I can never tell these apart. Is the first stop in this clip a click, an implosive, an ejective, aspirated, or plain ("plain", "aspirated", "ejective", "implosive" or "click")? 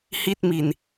plain